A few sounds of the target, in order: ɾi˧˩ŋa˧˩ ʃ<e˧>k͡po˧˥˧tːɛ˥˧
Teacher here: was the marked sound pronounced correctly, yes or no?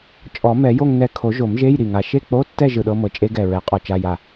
no